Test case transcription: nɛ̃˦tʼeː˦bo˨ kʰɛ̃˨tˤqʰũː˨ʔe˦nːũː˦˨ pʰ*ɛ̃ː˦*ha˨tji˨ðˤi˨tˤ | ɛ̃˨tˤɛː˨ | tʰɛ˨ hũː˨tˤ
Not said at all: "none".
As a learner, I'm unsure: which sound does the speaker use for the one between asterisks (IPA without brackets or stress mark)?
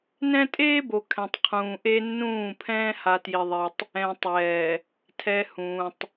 ɛ̃ː˦